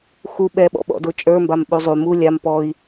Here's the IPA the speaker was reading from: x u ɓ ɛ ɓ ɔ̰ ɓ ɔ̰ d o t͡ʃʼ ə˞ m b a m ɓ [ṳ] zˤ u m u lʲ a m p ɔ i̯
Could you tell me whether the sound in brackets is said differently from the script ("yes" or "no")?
yes